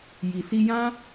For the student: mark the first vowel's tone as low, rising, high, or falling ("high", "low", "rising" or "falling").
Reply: low